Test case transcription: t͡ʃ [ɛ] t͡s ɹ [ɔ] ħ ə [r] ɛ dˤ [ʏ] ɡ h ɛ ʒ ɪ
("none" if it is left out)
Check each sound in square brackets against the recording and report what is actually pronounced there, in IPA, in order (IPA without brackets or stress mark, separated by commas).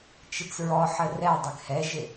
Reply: ɪ, ɔ, r, ɪ